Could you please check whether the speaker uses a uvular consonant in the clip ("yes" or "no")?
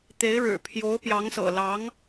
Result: no